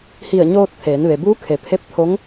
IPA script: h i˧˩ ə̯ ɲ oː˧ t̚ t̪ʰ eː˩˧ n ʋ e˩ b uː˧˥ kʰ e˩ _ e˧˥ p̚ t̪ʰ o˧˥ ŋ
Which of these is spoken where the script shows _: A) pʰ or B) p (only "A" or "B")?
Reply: A